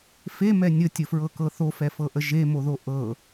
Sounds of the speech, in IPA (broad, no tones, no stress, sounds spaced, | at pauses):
f e m ɛ nʲ ə tʲ ə f ɹ ɤ k ɤ θ o f ɛ f ɤ ʔ ə ʒ e m o ð o ʔ ɤ